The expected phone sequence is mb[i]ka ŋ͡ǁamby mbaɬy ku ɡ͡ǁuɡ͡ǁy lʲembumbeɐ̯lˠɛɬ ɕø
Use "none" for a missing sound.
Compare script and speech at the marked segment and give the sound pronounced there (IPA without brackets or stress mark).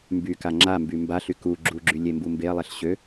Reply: y